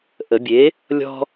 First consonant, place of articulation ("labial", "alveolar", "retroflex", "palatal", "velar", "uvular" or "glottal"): glottal